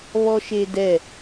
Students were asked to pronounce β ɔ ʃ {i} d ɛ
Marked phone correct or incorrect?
incorrect